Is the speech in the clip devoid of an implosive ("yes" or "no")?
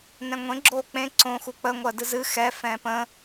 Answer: yes